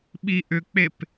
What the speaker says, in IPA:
ɓ i ʔ ʏ k͡p e p

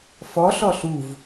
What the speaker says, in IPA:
f ɔ ɬ ɔ ɬ u v

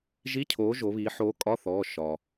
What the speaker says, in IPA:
ʒ i˧˥˧ cʰ oː˨˥ ʒ o˩˧ β iː˩˧ ħ oː˨˥ kʼ ɒ˧˥˧ θ ɔː˩˧˩ ʃ ɒ˩

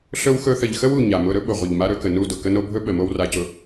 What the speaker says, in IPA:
ɬ ɵ˦ w x ɵ˦ θ ə˨ ʎ x ə˦ w u˨ ɲ a˨ m ʊ˦ ɾ ɵ˦ ɓ ʊ˨ ʁʷ ə˨ ʎ m a˦ ɾ ɵ˦ k ə˨ n u˦˨ d ʊ˨ k ə˦ n o˦ bʱ ɵ˦ ɓ ə˨ m o˦ w r a˨ c ʊ˨

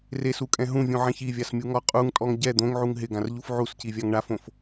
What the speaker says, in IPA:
r e s u kʼ ɛ̃ ɦ ũ vʲ ũ ʕ ɛ̃ ç i vʲ a s mʲ u ŋ ɔ qʼ u ŋ tʼ ɔ ŋ ɟ ɛ d̪ õ ŋ ʕ u ŋ ɦ ɪ ɡ ã r ʎ u f ʕ u s c i vʲ a ŋ ɳ a f õ f

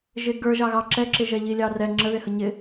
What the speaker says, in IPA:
ʒ ɪ ɡ ə˞ ʒ ɑ ɣ ɑ ǁ ɛ ǁ ɪ ʒ ɛ ʎ i lʲ ɑ r ɛ ŋ͡ǁ ə ð ɪ h ə ɲ ɪ

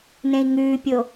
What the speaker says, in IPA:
n ẽ i̯ ŋ ʉː pʲ o

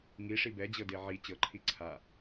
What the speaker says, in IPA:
ŋ i ʂ i b ɛ d͡ʑ ɤ d e ʕ i t͡ɕ ɤ ǃʰ i ǀʰ a

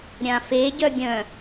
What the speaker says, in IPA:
ɾʲ ã f e ɟ œ ɡʲ œ̃

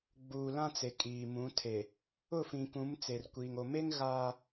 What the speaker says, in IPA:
ɡ͡b uː˨ l ã˦ t͡s e˨ kʼ iː˨ m ũ˨˦ tʰ e˨ | ʊ˦˨ f ĩ˨ k ũ˨˦ m t͡s e˨ r kʷ iː˨ ŋ o˨ m e˦ ŋ ɣ aː˦

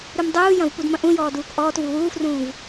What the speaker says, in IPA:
ɾ u m dˤ uː j ɐ̃ v p u d m ɐ̃ ʔ ũ j ɔː d uː k ʔ ɔː t v u w uː f r ũː v

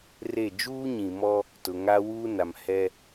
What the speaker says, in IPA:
r e˦˨ d͡ʒ uː˦ ɲ ĩ˨ m ɔ˦ | t ʊ˨ ŋ a˦ w uː˦ n a˨ m h ɛ˦

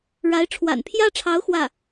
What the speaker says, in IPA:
ɻ a˧˥ ɪ̯ ʈ͡ʂʰ w a̰˨˩ n pʰ j ä˥ ʈ͡ʂʰ ɑ˧˥ ʊ̯ x w ä˥˩

